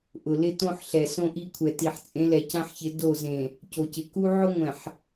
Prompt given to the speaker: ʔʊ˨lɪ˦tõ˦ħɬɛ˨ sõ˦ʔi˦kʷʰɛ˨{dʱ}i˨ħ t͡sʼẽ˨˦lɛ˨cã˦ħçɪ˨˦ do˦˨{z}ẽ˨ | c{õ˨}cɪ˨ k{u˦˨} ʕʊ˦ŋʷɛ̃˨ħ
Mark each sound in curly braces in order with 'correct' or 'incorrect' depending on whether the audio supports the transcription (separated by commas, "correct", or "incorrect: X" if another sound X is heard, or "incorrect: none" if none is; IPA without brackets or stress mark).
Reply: incorrect: t, correct, incorrect: o˨, incorrect: u˦